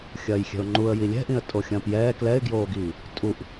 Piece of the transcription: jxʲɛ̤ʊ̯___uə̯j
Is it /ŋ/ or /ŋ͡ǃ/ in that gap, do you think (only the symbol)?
ŋ͡ǃ